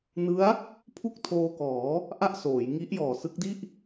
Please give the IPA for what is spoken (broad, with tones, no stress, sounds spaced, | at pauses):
n ɯ˦˥ a̯ | pʰ u˥˩ k̚ tʰ oː˧ k ɔː˩˦ | ʔ a˥˩ ʔ s oː˩˦ j ŋ i˦˥ ʔ j ɔː˨˩ s ɯ˦˥ k̚ d i˥˩ ʔ